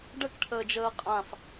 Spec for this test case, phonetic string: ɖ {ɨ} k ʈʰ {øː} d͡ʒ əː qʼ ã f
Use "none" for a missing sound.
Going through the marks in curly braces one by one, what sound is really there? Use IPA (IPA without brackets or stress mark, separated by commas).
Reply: ə, əː